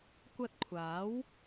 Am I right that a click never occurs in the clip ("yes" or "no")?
yes